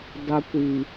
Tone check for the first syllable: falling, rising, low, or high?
low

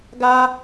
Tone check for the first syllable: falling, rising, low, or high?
high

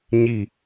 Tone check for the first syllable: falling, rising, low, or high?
falling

